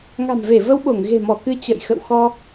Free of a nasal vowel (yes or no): yes